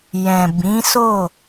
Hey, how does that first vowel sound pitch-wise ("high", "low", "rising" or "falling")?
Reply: low